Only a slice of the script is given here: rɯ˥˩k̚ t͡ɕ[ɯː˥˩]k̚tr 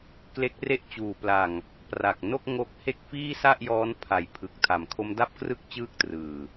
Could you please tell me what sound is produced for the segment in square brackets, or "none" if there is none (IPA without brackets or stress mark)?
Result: ɯː˥˩